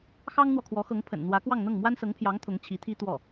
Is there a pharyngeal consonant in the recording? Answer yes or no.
no